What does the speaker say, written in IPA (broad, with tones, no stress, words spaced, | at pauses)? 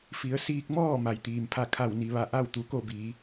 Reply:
fi˩˧ə̯siː˧k̚mɔː˥˨ ma˩jt̪iː˩mpʰa˥˨ kʰa˧˩wni˩ʋa˧˩ ʔa˥˨wt̪u˩ko˥˨biː˩˧